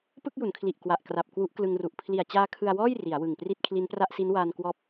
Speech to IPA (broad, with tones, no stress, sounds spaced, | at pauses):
p ɯ˥˩ k̚ j u˩˦ n kʰ l i˨˩ ʔ k w a˨˩ ʔ k r a˨˩ p̚ k w u˦˥ ʔ k l ɯ˧ ŋ r u˨˩ ʔ pʰ l i˨˩ a̯ t͡ɕ aː˦˥ kʰ ɯ˧ a̯ w ɔː˥˩ j r i˩˦ a̯ w ɯ˨˩ ŋ p r i˥˩ t̚ kʰ l i˦˥ n p r a˥˩ ʔ s i˦˥ n w aː˧ n k w ɔː˦˥ p̚